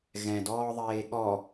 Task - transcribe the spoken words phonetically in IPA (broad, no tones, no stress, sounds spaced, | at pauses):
ɣ ɛ̃ d ɔː ðˤ eː ɠ ɔ